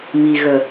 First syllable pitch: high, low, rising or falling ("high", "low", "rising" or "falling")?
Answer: low